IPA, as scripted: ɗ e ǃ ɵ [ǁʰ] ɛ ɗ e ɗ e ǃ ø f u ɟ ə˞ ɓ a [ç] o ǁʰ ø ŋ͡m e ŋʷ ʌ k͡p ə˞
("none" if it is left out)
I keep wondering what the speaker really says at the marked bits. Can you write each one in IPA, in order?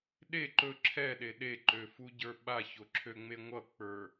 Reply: ǁʰ, ç

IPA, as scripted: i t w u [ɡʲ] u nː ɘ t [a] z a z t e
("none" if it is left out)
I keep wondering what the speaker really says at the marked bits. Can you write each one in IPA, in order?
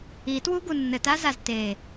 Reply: ɡ, a

